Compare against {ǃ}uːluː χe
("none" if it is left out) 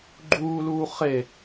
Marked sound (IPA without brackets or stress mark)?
ɡ͡ǃ